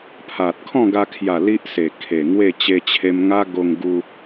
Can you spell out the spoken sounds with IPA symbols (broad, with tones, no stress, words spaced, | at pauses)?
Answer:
pʰa˨t̚ kʰɔ̃˥˧ɡa˧kʰja˨˩ li˦ʔse˨˩ kʰe˨˩ŋwe˥˧ t͡ɕe˧t͡ɕʰe˧mŋa˦ ɡo˧ŋɡu˧